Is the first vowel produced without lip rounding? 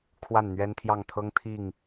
yes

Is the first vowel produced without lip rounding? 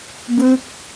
yes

